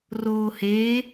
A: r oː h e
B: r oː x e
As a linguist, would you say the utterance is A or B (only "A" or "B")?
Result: A